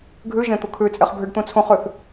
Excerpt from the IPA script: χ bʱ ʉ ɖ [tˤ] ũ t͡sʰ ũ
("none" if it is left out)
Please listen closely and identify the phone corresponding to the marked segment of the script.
t̪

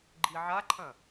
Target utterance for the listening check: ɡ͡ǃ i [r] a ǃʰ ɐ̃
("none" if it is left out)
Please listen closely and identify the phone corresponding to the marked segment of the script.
ʕ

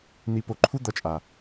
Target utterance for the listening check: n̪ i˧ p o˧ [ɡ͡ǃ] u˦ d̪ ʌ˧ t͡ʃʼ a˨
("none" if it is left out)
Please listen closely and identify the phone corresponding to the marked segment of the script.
ǃʰ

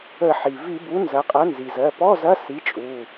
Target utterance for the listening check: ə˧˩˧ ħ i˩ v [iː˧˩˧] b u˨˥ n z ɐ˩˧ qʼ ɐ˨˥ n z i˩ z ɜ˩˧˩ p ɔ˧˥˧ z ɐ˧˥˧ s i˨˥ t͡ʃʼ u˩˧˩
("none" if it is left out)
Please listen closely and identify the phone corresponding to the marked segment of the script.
i˧˩˧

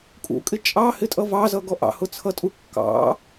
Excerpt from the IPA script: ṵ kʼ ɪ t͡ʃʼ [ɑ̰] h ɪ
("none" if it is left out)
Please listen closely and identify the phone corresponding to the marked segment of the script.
ɑ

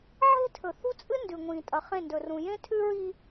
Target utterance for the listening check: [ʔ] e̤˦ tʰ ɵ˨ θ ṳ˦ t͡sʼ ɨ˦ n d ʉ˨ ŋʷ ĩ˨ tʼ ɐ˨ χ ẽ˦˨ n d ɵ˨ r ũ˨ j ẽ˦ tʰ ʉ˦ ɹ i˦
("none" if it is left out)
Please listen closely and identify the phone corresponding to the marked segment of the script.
ʕ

